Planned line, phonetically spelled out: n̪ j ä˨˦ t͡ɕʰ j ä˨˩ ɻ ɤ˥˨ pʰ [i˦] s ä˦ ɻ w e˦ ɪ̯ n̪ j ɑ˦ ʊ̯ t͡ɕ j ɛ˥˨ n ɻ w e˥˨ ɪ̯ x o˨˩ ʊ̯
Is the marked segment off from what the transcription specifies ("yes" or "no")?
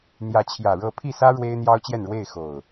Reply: yes